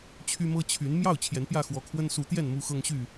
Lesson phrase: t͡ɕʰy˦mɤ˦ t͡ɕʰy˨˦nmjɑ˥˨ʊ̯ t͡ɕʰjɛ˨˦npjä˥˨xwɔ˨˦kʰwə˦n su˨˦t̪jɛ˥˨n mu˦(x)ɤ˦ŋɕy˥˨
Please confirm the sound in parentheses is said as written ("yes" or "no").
yes